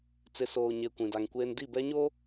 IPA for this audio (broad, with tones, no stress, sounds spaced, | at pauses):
t͡s ɪ˨ s oː˨ ɲ e˨ kʷ ĩ˨ d a˨ ŋ kʷ eː˦ n d i˦˨ b ɛ˦ ɲ o˦